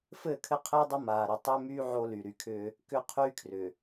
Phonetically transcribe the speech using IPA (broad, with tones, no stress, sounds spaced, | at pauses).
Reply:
f ɘː˦˨ kʰ ɘ˦ qʰ ɘː˦ dˤ ɘ˦ m aː˨ ɾ ɘ˨ tˤ ʏː˦ m yː˦ ʕ o˦ l y˨ ɾ y˨ kʰ ʏː˦ | k ʏ˦ qʰ yː˦ kʰ r ʏ˨